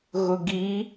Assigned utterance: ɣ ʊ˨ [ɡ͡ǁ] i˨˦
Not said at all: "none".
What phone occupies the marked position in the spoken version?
ɡ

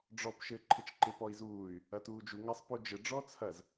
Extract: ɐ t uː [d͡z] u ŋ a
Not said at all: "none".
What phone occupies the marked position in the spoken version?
d͡ʒ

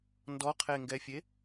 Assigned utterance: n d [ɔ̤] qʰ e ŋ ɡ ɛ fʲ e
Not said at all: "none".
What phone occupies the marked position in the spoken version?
ɔ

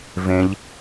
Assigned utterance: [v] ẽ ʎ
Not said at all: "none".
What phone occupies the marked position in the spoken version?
v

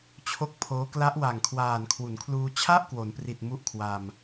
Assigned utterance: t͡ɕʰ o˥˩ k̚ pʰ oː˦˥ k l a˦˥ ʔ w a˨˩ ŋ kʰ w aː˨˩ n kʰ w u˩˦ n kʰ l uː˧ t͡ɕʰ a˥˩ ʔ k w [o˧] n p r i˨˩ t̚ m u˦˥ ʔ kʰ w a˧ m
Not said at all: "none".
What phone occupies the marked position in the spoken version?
o˩˦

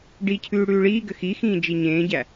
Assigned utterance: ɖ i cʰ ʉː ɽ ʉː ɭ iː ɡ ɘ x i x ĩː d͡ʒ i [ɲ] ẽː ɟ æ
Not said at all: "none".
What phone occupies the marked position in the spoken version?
ɲ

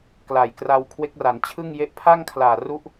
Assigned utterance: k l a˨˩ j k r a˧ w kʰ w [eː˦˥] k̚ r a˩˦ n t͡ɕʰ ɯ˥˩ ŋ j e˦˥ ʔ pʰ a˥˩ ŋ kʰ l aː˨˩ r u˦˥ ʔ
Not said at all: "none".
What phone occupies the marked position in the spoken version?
e˦˥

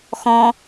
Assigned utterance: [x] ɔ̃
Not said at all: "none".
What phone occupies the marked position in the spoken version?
x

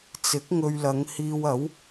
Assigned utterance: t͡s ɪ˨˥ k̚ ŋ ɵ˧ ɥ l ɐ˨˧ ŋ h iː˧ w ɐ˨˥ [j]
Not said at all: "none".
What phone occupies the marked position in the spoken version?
w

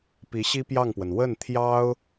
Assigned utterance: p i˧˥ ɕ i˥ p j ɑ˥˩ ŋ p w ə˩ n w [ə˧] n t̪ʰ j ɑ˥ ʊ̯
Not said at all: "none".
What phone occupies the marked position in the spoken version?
ə˥˩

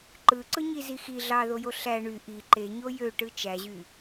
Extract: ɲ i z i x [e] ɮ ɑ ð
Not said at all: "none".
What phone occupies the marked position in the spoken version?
i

